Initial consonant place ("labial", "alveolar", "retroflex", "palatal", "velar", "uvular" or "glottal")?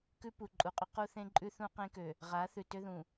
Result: velar